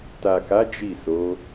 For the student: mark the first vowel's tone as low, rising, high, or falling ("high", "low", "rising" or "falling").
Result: low